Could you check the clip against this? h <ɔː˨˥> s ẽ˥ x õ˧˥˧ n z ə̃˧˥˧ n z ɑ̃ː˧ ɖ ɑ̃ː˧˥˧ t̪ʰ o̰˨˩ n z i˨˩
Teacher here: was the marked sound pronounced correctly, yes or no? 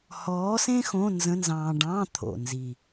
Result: yes